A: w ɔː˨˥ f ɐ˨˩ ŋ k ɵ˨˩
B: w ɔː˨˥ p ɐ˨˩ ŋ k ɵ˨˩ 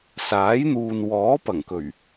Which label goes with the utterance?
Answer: B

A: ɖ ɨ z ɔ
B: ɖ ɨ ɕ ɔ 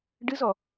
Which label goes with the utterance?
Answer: A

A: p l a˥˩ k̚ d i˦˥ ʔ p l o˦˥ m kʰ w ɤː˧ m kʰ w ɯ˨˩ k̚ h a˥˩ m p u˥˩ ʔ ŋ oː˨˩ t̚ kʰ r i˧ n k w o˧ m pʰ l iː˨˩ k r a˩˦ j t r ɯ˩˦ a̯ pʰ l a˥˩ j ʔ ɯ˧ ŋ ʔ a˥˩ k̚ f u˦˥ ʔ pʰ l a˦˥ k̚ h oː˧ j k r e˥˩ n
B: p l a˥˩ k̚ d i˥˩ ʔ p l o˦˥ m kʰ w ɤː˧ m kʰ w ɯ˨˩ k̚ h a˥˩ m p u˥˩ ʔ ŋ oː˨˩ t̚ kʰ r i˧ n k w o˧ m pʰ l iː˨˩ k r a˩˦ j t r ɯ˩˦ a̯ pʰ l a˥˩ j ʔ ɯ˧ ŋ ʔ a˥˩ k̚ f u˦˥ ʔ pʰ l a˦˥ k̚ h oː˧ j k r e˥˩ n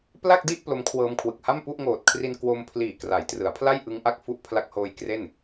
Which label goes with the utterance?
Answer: B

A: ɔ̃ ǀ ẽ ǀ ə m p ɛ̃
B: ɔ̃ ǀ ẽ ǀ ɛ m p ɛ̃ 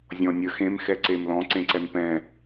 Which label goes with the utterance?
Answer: B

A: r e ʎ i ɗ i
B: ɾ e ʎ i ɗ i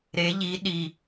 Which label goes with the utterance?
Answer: B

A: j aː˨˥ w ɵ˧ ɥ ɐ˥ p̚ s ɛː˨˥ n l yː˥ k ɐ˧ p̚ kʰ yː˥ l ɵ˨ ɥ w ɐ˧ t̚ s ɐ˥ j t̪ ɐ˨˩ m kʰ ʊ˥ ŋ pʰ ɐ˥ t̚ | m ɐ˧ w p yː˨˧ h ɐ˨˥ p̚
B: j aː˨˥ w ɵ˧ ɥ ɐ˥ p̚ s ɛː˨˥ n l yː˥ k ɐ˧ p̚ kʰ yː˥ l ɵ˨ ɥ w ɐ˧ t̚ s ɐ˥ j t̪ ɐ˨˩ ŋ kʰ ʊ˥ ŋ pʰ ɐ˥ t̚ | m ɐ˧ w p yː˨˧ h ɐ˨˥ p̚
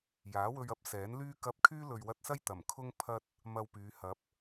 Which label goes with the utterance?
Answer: A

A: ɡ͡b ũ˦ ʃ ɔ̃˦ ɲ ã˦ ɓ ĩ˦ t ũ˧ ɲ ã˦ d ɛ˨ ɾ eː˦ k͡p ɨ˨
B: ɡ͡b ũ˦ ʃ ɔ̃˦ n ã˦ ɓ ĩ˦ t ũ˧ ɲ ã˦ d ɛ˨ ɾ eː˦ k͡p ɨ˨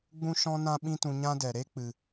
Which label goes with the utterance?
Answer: B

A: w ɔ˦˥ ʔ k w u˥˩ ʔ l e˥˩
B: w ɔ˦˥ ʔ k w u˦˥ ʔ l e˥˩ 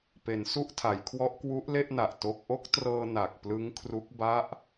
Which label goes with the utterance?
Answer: B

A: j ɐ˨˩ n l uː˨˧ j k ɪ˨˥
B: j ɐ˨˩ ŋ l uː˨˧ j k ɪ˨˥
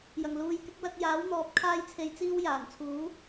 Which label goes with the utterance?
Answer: B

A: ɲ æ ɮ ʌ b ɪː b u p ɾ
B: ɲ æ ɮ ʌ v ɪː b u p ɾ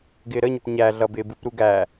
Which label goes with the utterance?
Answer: A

